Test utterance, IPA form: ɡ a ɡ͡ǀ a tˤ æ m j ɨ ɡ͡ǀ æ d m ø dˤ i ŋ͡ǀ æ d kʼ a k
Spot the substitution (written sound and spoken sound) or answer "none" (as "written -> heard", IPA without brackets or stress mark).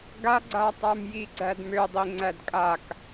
ɨ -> i